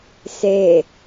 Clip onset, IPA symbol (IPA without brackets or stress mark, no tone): s